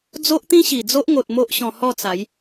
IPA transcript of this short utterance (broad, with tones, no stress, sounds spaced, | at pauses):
d͡z o˦ ʔ t̪ ĩ˦ ɕ i˨˩ d͡z o˦ ʔ ŋ o˨ t̚ m o˦ ʔ ɕ ɔ̃˧ h ɔ˥˧ t͡s a˨˦ j